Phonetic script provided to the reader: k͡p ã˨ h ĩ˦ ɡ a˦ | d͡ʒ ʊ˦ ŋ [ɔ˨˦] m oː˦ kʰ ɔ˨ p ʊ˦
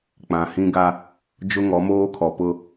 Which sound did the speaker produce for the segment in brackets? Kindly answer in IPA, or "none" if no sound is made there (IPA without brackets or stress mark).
ɔ˨˦